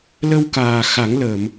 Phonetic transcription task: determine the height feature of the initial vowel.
mid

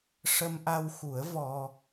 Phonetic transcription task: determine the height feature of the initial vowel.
mid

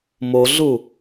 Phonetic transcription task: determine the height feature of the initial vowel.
mid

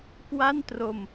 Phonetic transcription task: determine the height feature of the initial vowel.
low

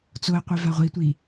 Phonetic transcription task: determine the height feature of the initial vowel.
mid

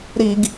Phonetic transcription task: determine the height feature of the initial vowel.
high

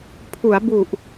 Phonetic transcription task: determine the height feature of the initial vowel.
high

